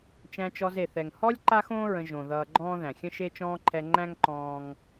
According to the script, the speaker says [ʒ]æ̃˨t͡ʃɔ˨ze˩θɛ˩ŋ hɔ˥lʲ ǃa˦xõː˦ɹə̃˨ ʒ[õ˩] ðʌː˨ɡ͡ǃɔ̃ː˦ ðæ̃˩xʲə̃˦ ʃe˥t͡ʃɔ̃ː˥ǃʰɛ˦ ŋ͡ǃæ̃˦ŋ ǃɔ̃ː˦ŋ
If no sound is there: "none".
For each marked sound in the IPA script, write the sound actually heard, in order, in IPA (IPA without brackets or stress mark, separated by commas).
t͡ʃ, õ˩